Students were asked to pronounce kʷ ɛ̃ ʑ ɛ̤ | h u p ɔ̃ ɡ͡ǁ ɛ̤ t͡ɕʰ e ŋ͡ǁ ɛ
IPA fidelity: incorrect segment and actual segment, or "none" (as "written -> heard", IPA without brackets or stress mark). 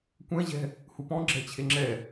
none